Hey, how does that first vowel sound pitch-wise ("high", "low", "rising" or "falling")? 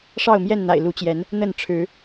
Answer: falling